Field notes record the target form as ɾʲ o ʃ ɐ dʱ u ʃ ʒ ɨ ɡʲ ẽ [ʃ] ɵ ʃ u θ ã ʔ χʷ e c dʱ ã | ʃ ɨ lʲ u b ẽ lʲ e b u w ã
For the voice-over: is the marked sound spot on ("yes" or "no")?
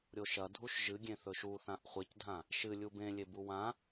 no